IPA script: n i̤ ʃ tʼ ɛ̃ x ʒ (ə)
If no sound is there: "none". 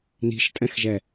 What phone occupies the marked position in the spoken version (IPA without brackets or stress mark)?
ɛ